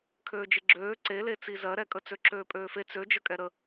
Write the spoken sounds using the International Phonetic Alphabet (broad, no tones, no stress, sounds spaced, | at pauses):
kʰ øː d͡ʒ ɪ ɡ͡ǁ øː ǀ e l e t͡s i z ɜ ɾ ɛ kʼ ə t͡s ø ǁ øː pʼ øː f e t͡s ø d͡ʒ ə kʼ ɛ ɾ ə